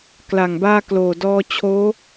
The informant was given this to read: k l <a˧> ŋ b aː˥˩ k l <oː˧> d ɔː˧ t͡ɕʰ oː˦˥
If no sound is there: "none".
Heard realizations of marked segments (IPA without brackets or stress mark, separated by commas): a˨˩, oː˨˩